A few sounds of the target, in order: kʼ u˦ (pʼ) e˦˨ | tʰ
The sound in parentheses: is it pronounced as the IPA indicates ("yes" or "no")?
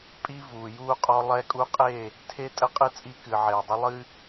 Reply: no